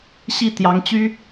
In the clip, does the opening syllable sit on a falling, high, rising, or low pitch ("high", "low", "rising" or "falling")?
falling